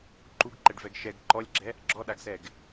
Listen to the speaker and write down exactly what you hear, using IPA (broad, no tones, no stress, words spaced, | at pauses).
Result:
ǃuɡǃɛɖvɛɡ ʃɛɡ ǃɔlʲɡ͡ǁɛ | ɡ͡ǁɔɗaɡsɛɡ